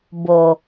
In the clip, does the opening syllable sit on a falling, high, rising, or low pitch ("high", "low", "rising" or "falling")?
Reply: low